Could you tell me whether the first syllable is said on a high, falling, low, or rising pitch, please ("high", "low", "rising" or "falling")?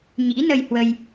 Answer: rising